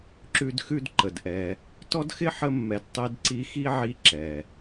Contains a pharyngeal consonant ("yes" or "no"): yes